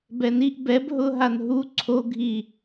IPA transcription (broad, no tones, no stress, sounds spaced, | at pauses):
b ɛ n i ʔ b ɛ b ɦ ʊ ɦ a n ɦ u ǀʰ o ɡʱ i